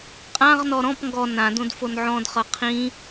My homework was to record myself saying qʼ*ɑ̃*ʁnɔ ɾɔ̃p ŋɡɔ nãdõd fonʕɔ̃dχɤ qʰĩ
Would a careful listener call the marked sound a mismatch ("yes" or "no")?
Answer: yes